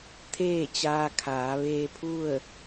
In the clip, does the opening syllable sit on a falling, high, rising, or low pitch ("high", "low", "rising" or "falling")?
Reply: falling